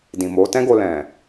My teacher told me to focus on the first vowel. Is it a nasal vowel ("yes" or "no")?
yes